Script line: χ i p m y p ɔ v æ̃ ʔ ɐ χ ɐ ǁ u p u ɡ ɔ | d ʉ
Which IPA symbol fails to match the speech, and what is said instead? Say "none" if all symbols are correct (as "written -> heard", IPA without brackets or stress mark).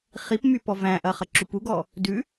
none